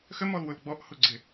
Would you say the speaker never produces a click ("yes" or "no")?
no